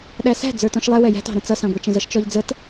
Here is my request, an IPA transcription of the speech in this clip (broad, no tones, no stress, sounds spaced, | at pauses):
ɗ æ s æ̤ d͡z ə˞ t ɔ̃ ʃ lˠ ɛ w ɛ j æ̤ t ɑ̤ ɾ ə̃ t͡s ʌ s ɑ̃ ɡʷ ɛ t͡ʃ ə̃ z ʌ ʃ t͡ʃ ɔ ʎ d͡z ə t